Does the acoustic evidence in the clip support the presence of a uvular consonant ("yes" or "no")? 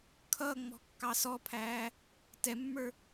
no